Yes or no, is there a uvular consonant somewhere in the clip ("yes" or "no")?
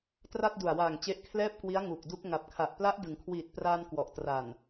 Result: no